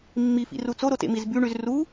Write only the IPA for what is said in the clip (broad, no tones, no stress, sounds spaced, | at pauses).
mː i f ḭ r u t͡s o ɾ o t ḛ m i z b y ɳ y z r u